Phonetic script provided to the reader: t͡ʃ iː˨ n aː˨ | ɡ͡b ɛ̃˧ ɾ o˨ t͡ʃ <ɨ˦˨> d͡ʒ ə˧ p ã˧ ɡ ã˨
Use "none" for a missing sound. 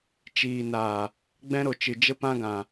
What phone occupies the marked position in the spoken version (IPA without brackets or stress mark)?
ɨ˨